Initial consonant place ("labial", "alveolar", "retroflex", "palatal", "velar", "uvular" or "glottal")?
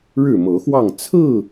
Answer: retroflex